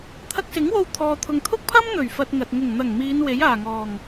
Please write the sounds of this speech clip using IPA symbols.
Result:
t̪ʰ ɐ˧ k̚ s ɪ˨˥ ŋ w o˧ w t̪ʰ ɔː˨ t̪ʰ ʊ˨ ŋ t̪ʰ ʊ˥ k̚ pʰ ɐ˥ m n̪ ɵ˨˩ ɥ f ɐ˧ t̚ ŋ ɐ˨ t̚ ŋ ʊ˨˩ ŋ n̪ ɐ˨˩ ŋ m iː˨˧ n w e˨˥ j aː˨˩ ŋ ɔː˨˩ ŋ

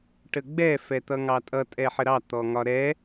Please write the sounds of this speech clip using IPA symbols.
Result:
ʈ ə ɡ͡b ɛ f ɛ t̪ ʌ ŋ ɑ tʼ ʌ tʼ ɛ ħ ə ɾ ɑ t̪ ɔ ŋ ɒ ɾ ɛ

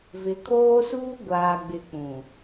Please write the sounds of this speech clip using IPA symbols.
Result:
v ɪ˨˦ kʰ oː˦ s uː˦ ɡʷ aː˨ ɡ͡b ɪ˨ k͡p ũ˨

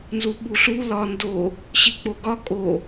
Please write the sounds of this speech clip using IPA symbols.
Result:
n z u ɓ u ɬ u l ɒ n d o | ɕ i k͡p o ɡ ɒ kʼ o

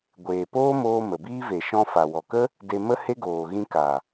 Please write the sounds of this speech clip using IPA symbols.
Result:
ɡʷ eː˨ p oː˦ m oː˧ m ə˨ b iː˦ v e˨ ʃ ɔ̃˦ f a˨ w ɔ˨ k ə˦ | d e˧ m ə˦ h e˦ ɡ oː˨ ɣ ĩ˧ k a˨

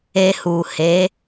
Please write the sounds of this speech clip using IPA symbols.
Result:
e˧ h u˨ h e˨˦

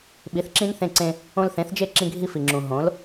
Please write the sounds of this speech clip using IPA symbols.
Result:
ɓ i˨˦ θ ǁ ĩ˦ n θ ẽ˧ ǀ ẽ˧ | õ˧ l θ ẽ˨˦ θ d͡ʒ e˦˨ ǁ ĩ˧ ɡʱ i˧ f i˨ ŋ͡ǁ ũ˨ ɦ õ˨˦ l

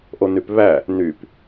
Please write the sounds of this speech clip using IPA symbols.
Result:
ʔ o n y p β æ | n y p

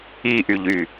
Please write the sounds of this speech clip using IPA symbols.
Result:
i ʔ y ʎ y

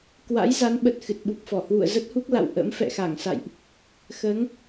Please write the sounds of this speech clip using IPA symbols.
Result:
k w a̰˧˥ j z a˨˦ n ɓ ə˨˩ t̚ x ɨ˨˩ t̚ ɓ u˨˩ p̚ f ɔ˧˩ h w ṵ˧˨ ə̯ z ə˦˥ t̚ h u˦˥ k̚ l a̰˧˨ w ʔ ə̰˧˥ m f ɛ̰˧˨ x a˧˩ ŋ s a̰˧˨ j ʔ | x əː˨˦ ŋ

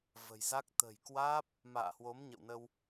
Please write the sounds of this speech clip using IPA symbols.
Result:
v ə̤˨˩ j z a˦˥ k̚ t̪ ə̤˨˩ j k w aː˦˥ p̚ | m a̰ː˧˨ h w o˨˦ m ɲ ə̰˧˨ w n ə˧ w

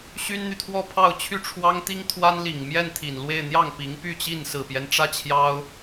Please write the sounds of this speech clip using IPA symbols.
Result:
ɕ y˥ n n̪ y˨ t̪ʰ w ɔ˥˧ pʰ ɑ˥˧ ʊ̯ t͡ɕʰ y˥˩ ʈ͡ʂʰ w ɑ˥ ŋ t̪ i˥ ŋ t̪ʰ w a˥ n l i˨˩ ŋ m j ɛ˥˩ n t̪ʰ i˨˩ n l w e˥˧ ɪ̯ n̪ j ɑ˥˩ ŋ p i˧˥ ŋ p y˥˧ t͡ɕ i˥˩ n s ɹ̩˨˩ p j ɛ˦ n ʈ͡ʂ ä˥˩ t͡ɕʰ j ɑ˥ ʊ̯

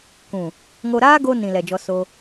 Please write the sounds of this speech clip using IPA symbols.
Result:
k ũ˨ | ŋ o˧ ɾ aː˦ ɡ o˧ n ĩ˨ l ɛ˨ d͡ʒ ɔ˧ s o˧

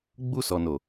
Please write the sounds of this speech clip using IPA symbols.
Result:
ɡ͡b u˧ s ɔ˨ n o˨

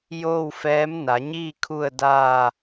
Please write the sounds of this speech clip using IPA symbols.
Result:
j oː˥˨ w f ɛː˧˥ m n a˩˧ ɲ iː˥˨ kʰ u˥˨ ə̯ d aː˥˨

